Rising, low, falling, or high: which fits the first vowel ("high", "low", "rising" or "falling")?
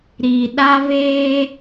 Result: low